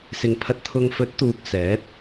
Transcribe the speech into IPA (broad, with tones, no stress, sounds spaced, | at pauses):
s ɪ˨ ŋ pʰ ɐ˧ t̚ t̪ʰ ʊ˧ ŋ f ɵ˨˥ t̚ t̪ uː˧ k̚ s ɛː˨˥ t̚